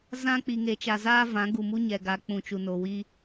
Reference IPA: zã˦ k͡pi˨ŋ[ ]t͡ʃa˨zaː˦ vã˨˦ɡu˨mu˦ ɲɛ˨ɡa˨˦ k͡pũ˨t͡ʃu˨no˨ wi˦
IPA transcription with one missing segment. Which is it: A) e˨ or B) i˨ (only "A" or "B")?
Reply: A